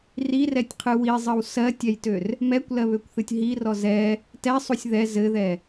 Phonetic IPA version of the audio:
r i r ɛ tʲ qʰ ɨ w i zˤ ɘ w s ɜ tʲ ɛ j t ø r | m ɛ kʷ l ɜ β ø kʷ θ ɨ tʲ ɦ i r ɔ z ɛ | t ɛ sˤ u sʲ ð ɛ z ɘ ð ɛ

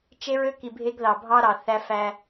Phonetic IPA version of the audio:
t͡ʃ e˦ ɹ ø˦ k i˨ bʱ e˦ ɡ ð ɑ˨ bʱ ɑ˦ ɾ ɑ˨ θ æ˦ f æ˦

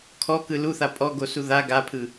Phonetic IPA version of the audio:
kʰ ɔ k ɯ l u θ a pʼ ɔ ɡ o s u ð a ɡ a pʰ ɯ

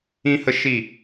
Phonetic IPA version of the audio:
ĩ˦ h ə˦ ʃ i˦˨

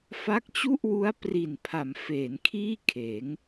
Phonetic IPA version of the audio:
f a˦˥ k̚ t͡ɕ u˥˩ ʔ w u˦˥ a̯ p r i˨˩ n pʰ a˩˦ m f eː˩˦ n kʰ iː˥˩ kʰ eː˩˦ ŋ

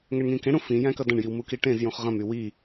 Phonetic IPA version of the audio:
ŋ ɛ ɳ ŋ ĩ k ẽ ɽ ũ f ĩ j æ̃ k ʌ d ɐ̃ ɳ j i w m u k i ʈ ẽ z j ũ χ ʁ ɐ̃ m y w i

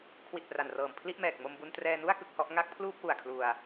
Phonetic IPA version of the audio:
kʰ w i˨˩ t̚ p r a˨˩ n r ɤː˨˩ m pʰ l i˥˩ ʔ m ɛː˨˩ k̚ m o˧ m b u˧ n t r ɛː˧ n u˥˩ a̯ k ɯ˥˩ k̚ h ɔ˦˥ ʔ ŋ a˥˩ k̚ pʰ l uː˥˩ p̚ w u˨˩ a̯ kʰ l u˧ a̯

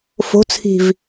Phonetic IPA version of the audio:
f o̤ t͡sʰ i̤ v

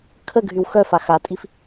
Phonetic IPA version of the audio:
kʰ ə ɡʱ y w x œ f a x a tʼ i f

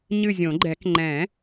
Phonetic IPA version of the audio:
ɲ ɨ˦˨ zʲ õ˨˩˦ ɡ͡ǃ ɛ˨˩˦ k ŋ͡ǃ ɛ̃˨˩˦

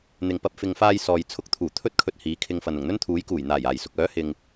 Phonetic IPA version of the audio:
n̪ ɪ˨ ŋ p ɐ˧ p̚ f ɪ˨ ŋ f aː˧ j s ɔː˨ j t͡sʰ ʊ˧ k̚ t̪ʰ uː˨˩ t̪ʰ ɵ˥ t̚ kʰ ɵ˧ t̚ h iː˨˥ kʰ ɪ˧ ŋ f ɐ˨ n ʊ˨˩ ŋ n̪ ɵ˥ n t̪ʰ uː˨˥ j k uː˨˩ j n̪ aː˨˩ j aː˨˩ j s ʊ˨ k̚ œː˨˥ h ɪ˨ ŋ

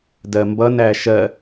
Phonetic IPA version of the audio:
d ɜ m b ʌ n æ ʃ ɜ

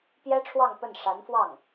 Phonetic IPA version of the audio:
p j ɛ˥ ʈ͡ʂʰ w ɑ˥˧ ŋ p ə˥˩ n ʂ a˧˥ n f w ɑ˥˩ ŋ

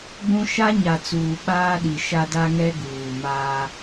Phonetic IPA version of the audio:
ɡ͡b ũ˦ ʃ a˦ ɲ a˨ t͡s uː˨ ɓ aː˦ ɗ i˨ ʃ a˦ d a˦ ŋ ɛ˦ ɡ uː˨ m aː˦

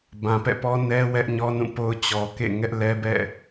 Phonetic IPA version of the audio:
b ã˨ p ɛ̰˦˨ p ɔ˦ n ɛ˦ w ɛ˦ ʔ ɲ ɔ˦ n ũ˦˨ p o˦ ʊ̯ t͡ɕ ɔ˨ k ḛ˦˨ ŋ ɛ˦ ʔ l ɛ˦ b ɛ̰˦˨

